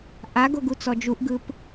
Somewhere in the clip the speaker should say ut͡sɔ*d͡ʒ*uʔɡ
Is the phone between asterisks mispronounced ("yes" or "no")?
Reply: no